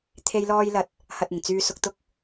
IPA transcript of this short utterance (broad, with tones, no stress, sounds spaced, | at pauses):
t̪ʰ e˧ j l ɔː˧ j l ɐ˨˥ t̚ | h ɐ˨ t̚ ɪ˨˩ ŋ t͡s yː˨ s ʊ˨ k̚ t̪ ʊ˧ k̚